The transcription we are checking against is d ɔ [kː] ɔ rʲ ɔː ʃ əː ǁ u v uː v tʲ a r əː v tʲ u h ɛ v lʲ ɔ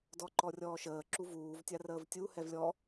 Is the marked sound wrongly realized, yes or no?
yes